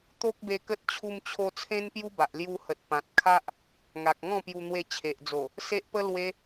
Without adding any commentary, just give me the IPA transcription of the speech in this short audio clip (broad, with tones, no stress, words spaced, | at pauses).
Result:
t̪o˦k̚be˧kə˦t̚ t͡ɕʰu˧mt͡ɕʰo˧ t͡sʰẽ˦npju˦ba˨ʔ lju˧hə˨t̚ pã˨t̚kʰa˦ʔ | ŋa˨k̚ŋɔ̃˥˧pju˧n̪we˧ t͡ɕʰe˨ʔd͡zo˨˩ | se˦ʔpə˦ lwe˧